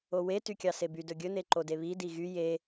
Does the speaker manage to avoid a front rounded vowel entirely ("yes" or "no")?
no